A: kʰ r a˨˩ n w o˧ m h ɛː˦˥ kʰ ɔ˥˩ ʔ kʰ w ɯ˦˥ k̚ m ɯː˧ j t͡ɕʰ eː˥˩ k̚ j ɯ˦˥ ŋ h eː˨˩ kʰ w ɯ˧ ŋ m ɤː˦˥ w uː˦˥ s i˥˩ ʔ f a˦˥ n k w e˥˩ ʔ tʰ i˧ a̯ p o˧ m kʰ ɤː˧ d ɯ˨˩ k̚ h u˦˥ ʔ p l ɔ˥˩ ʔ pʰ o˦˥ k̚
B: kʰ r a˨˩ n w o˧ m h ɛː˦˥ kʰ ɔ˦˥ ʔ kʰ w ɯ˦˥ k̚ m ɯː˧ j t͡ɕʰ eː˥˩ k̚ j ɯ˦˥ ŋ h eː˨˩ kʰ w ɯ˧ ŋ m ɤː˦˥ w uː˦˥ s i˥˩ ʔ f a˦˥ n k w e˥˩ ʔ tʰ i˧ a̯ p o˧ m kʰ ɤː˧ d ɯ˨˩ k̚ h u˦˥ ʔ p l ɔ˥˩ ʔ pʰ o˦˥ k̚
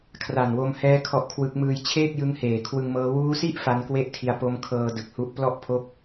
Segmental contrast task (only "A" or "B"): B